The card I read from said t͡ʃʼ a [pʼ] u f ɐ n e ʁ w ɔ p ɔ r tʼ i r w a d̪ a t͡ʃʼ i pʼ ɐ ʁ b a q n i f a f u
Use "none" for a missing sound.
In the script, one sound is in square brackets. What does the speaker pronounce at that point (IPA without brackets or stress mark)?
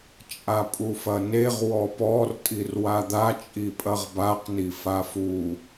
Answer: pʼ